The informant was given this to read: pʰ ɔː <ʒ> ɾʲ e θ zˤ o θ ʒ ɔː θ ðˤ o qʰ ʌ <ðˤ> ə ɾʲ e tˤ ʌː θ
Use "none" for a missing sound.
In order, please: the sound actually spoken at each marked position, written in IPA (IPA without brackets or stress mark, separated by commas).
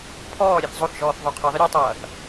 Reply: none, ðˤ